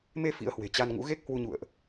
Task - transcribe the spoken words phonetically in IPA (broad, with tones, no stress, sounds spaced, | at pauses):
m e˧ f ḭ˧˥ ə̯ h w e̤˨˩ t͡ɕ a˧ n ŋ ṵ˧˥ ɣ e˦˥ k̚ h w u˧ ɲ ṵ˧˨ ə̯ ʔ